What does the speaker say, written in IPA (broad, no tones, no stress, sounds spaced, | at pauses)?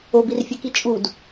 o b i r fʲ ɛ k i t͡ʃʼ u d